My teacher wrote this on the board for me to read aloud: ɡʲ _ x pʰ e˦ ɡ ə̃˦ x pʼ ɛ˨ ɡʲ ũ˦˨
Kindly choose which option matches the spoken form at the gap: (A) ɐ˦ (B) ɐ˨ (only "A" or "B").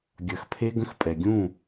B